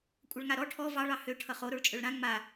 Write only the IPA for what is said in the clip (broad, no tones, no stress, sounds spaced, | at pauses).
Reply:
kʷʼ ʌ ɭ ŋ a ɾ ɔ ʈʰ ɔ v ɑ ɭ ɑ h ø ʈʰ ʌ χ o ɾ o ɭ t͡ʃʼ ø ɭ ɾ ã ŋ͡m a